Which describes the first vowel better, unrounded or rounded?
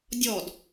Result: rounded